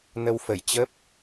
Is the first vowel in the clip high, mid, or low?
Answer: mid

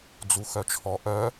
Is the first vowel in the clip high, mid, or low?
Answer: high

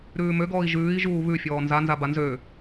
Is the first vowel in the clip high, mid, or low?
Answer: high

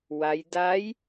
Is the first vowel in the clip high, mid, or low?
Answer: low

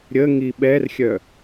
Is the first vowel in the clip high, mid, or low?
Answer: mid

